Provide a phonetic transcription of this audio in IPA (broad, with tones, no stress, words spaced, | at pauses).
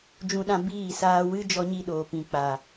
d͡ʒũ˧ɗã˧ biː˦˨saː˧wɨ˦ d͡ʒɔ˧ɲi˧ɗoː˨ pĩ˨k͡pa˨